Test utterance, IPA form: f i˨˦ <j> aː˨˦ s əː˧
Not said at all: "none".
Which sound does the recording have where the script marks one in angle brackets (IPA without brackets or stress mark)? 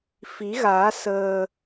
ɣ